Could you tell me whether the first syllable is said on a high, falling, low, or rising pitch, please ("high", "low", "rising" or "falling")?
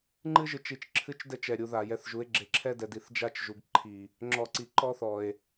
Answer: high